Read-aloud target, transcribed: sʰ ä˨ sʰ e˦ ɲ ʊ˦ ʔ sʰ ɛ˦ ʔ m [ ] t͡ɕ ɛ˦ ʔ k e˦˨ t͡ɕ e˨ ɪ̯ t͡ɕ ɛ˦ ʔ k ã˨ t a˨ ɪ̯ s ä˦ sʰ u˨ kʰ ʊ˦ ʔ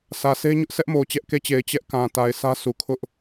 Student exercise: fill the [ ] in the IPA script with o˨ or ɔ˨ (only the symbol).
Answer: o˨